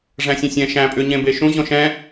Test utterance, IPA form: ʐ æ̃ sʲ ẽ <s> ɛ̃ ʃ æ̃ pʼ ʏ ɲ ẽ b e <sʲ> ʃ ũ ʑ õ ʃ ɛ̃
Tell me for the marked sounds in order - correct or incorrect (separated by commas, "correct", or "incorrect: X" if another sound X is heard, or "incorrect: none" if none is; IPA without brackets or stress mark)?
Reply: incorrect: sʲ, incorrect: none